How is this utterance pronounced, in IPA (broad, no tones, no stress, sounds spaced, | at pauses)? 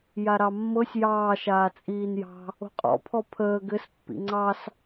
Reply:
j a ɾ ɑ mː ɤ sʲ j ɑː ʃ aː t͡sʼ iː n j ɑ̤ | o̤ qʼ ɔ̰ pʰ ɔ pʰ əː ɡ ɘ s pː ḭ ŋ͡ǀ ɑ s